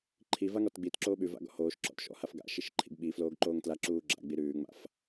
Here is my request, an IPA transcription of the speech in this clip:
ǃʰ i v a ŋ ɔ t ɡ͡b i t ǁ oː ɓ ʉ v a̰ ɡ ɔ̰ h oː ʃ ǁ ɔ̰ t ʃ ɔ̰ h a f ɡ a̰ ʃ i ʃ ǃʰ ḭ ɡ ɓ i f l oː ɡ ǃ oː ŋ t l a ǁ uː ɡ͡ǁ a̰ ɡ͡b i ɾ ʉː ŋ͡m a̰ f

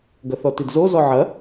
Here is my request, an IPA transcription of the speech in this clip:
ɡ ɐ θ ɔ t i d z o z ɔ ʕ ɐ

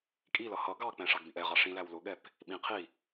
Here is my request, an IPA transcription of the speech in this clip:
kʼ i l ʌ h ʌ ɡ ɑ k͡p ɛ̃ ʂ ɑ ɡ b ĩ ʔ ɛ ʁ ɑ ʂ ĩ l æ w l ʊ ɠ ɛ p | ɓ ĩ qʰ i

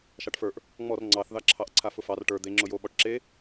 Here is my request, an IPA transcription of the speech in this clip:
ʃ ɑ ʈ f ə˞ ʔ | ŋ͡m ɔ r ŋ͡ǀ ɑ θ ð ɑ ǁʰ ɑ ʔ ǀʰ a f ʊ f ɑ r ʈ ə˞ d̪ e ŋ͡ǁ ʊ j o ɓ ɔ ʈ ǁ e

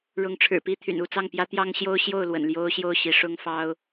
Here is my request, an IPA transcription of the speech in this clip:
ɻ ʊ˨˦ ŋ ʈ͡ʂʰ ɻ̩˨˩ p i˦ t̪ʰ y̰˨˩ n u˥˨ t͡s ɑ˥˨ ŋ p j ä˦ t̪ j ɑ˦ ŋ ɕ j o˦ ʊ̯ ɕ j o˥˨ ʊ̯ l w ə̰˨˩ n l j o˦ ʊ̯ ɕ j o˥˨ ʊ̯ ɕ i˨˦ ʂ ʊ˦ ŋ f ɑ˦ ʊ̯

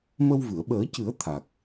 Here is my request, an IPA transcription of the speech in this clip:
m ə˧ w v ɨ˨˩˨ ə̯ ɓ əː˨˩˦ c ɨ˨˩˦ ə̯ t̪ʰ a˨˩ k̚

